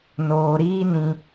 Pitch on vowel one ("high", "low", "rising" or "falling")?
low